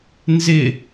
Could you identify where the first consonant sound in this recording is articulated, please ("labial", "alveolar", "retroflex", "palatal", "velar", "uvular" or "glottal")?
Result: alveolar